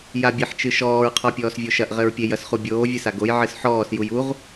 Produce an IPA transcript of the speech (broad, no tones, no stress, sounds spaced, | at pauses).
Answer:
j a bʲ ɛ ħ t͡ʃ ɨ ʃ ɔː ɹ qʰ ɔ pʲ ɔː s vʲ o ʃ ɐ ʔ ʁ ɘ ɹ pʲ e j ɐ s χ u bʲ oː vʲ ɨ s a ɡ o j ʕ ɨ s ħ ɔː s j u j u ʁ